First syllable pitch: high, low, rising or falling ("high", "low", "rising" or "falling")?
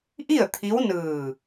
falling